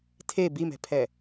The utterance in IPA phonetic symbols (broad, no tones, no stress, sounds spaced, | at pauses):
tʰ e b i m ɛ̤ pʰ ɛ